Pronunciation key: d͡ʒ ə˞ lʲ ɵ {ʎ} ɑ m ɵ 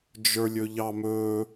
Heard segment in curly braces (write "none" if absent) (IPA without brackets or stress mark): ʎ